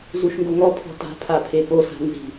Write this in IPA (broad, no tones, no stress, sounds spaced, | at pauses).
z u ʃ ŋ ɡ o ŋ ɔ pʰ ɔ̤ t a̤ pʰ a pʰ e p o s a̤ n z i̤